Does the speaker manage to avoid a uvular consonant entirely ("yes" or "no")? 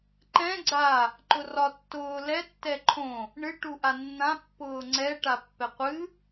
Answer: no